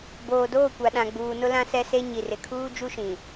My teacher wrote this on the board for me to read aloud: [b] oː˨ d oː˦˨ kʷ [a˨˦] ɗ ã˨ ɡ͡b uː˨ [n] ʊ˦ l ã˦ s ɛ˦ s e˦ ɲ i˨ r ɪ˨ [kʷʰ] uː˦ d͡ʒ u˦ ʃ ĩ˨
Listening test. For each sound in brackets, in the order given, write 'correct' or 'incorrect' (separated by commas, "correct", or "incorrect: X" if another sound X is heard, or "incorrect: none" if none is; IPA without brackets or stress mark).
correct, incorrect: a˨, correct, incorrect: kʰ